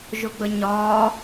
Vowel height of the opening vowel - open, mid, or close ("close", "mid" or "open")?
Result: close